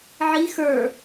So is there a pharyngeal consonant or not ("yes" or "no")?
yes